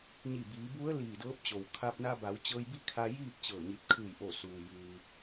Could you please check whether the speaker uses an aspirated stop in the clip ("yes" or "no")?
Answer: yes